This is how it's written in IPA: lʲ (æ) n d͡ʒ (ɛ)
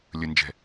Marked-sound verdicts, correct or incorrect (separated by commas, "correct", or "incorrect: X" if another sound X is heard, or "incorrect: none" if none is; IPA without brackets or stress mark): incorrect: ə, incorrect: ɛ̤